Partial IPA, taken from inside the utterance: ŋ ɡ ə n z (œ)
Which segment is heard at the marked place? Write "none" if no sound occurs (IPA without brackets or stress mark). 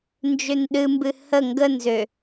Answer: ø